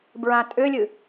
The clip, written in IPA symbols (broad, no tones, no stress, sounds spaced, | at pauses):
b ɹ ã tʼ ʏ lʲ ɨ